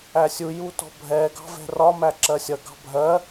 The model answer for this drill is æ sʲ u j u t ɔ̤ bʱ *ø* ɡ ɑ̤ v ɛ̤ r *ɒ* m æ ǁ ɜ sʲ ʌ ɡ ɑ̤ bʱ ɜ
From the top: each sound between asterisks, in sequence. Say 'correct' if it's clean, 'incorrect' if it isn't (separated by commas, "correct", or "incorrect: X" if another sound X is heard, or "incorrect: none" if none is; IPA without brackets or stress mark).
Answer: incorrect: ɛ, correct